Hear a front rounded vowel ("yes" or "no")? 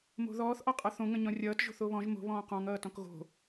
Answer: no